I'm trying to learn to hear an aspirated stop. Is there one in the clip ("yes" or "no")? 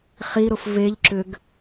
no